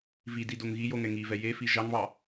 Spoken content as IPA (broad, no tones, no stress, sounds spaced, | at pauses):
v i d i d o ŋ ɣ i j o ŋ ɛ ŋ i v ɛ j e f i ʒ ɑ ŋ β ɑ